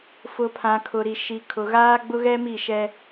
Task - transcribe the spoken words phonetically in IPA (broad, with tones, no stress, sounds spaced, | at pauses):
f ʊ˨ pʰ ã˨ kʰ ʊ˨ ɾ i˨ ʃ i˨ kʰ ʊ˨ ɣ aː˦ ɡ͡b ʊ˦ ɣ ɛ˦ m i˦˨ ʃ ɛ˦